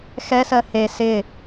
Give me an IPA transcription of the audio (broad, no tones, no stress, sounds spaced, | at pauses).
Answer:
x ɛ s ɜ h e s ɪ